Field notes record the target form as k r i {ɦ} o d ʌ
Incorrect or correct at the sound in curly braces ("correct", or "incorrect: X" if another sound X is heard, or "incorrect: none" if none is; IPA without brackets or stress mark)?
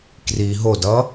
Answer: correct